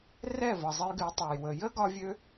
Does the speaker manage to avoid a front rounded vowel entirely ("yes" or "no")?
no